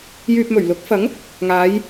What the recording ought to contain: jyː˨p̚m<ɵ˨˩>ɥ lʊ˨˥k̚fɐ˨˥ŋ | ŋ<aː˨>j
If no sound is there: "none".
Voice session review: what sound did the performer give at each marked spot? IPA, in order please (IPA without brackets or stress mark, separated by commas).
ɵ˨˩, aː˨˧